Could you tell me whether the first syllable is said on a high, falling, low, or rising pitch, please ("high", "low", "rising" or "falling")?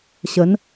rising